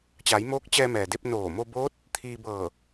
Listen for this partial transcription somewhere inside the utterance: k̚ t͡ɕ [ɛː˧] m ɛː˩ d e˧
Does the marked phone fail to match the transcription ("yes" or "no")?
no